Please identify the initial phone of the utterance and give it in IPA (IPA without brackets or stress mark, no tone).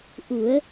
ʔ